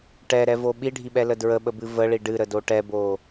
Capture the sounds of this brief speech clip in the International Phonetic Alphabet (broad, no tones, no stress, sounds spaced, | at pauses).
ʈ ɛ ɾ ɛ v o ɓ i ɖʱ i ɓ ɛ l ə d ɹ ə ɓ ə b ɨ v ə ɭ i ɖ ɨ ɾ ə d o ʈ ɛ b o